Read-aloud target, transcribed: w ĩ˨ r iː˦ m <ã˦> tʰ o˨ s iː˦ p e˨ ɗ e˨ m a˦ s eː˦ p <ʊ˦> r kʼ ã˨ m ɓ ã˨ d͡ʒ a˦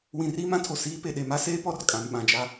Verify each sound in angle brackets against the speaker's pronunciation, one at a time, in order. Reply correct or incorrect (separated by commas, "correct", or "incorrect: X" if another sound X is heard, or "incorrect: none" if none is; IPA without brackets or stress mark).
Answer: correct, incorrect: ɔ˦